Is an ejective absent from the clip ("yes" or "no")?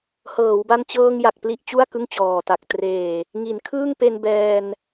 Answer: yes